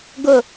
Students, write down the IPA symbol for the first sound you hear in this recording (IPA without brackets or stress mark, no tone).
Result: ɡ